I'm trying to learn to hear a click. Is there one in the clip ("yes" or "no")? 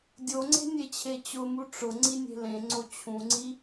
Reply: yes